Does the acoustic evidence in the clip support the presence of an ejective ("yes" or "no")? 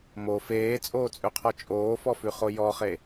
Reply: yes